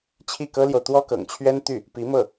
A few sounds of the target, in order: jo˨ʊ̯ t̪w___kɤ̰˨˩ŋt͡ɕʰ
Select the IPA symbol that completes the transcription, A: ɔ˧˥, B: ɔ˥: B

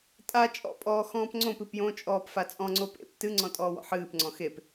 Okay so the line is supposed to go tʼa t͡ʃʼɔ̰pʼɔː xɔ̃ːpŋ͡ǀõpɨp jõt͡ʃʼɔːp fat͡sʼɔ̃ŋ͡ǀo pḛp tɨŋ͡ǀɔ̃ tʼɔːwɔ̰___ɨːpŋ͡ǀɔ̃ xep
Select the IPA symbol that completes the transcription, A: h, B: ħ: B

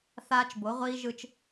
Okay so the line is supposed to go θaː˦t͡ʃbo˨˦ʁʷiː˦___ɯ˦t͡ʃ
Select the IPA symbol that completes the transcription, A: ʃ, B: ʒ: B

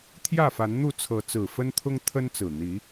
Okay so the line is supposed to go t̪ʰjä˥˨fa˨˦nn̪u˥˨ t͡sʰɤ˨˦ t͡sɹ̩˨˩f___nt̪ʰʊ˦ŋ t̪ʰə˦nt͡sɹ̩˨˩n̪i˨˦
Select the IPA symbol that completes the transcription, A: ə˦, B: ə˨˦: A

